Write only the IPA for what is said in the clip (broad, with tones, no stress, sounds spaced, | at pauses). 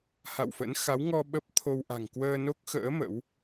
h a̰˧˨ w f ə̰˧˥ n x a˨˦ w ŋ ɔ˧ ɓ ə˦˥ p̚ t̪ʰ o˧ w ʔ a̤˨˩ ŋ k w əː˧ n o˦˥ k̚ x ə̰ː˧˥ m ə̰˧˥ w